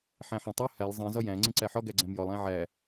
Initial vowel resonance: nasal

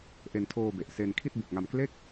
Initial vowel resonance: oral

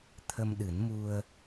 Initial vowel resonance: oral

